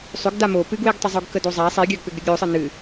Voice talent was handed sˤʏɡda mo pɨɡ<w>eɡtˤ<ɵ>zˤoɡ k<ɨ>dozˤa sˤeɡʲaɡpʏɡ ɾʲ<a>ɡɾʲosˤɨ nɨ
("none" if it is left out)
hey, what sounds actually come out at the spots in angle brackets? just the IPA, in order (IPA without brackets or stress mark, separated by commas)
w, ɵ, ə, ə